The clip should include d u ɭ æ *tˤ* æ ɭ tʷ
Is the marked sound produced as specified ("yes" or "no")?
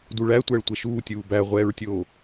no